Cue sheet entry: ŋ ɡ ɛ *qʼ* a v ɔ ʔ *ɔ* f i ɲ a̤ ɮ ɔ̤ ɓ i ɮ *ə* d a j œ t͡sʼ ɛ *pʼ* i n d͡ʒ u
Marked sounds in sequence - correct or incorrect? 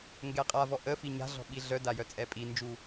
correct, incorrect, incorrect, correct

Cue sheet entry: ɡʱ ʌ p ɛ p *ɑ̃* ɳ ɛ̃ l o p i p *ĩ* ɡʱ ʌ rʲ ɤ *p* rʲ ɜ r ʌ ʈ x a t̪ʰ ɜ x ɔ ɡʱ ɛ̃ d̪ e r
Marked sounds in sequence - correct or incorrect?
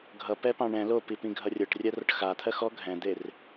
correct, correct, incorrect

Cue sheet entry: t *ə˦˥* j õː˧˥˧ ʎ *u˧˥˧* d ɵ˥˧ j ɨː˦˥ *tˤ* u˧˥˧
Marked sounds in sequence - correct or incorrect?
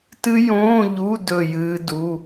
incorrect, correct, incorrect

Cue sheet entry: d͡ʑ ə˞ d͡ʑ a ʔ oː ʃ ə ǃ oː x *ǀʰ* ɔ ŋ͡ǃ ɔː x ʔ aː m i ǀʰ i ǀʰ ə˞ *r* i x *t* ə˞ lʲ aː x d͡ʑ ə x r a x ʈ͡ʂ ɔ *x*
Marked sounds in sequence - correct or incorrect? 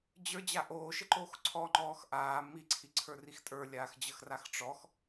correct, correct, incorrect, correct

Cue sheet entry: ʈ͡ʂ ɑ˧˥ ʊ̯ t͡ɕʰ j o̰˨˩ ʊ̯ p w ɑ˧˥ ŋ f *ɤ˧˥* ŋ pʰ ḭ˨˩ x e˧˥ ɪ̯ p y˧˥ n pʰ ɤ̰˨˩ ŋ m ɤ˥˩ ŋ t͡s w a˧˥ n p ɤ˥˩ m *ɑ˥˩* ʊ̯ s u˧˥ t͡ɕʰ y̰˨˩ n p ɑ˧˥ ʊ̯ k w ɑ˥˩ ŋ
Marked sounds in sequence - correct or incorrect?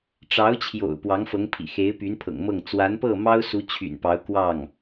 correct, incorrect

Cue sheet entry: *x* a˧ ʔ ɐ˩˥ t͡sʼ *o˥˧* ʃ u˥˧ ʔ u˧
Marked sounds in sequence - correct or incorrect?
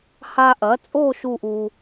incorrect, correct

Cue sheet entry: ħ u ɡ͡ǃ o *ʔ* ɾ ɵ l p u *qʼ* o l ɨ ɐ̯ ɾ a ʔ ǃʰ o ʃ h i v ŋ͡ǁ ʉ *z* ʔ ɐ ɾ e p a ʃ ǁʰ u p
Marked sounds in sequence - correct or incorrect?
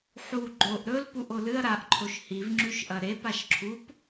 correct, incorrect, incorrect

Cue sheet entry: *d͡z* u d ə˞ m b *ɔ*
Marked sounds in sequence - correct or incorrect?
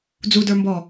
correct, correct

